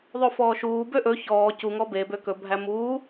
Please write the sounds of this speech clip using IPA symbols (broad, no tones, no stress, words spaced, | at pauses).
ðˤofɔːʃuːbø ʔɵ çɔː cuŋɔ bebø kɵbʱæ muː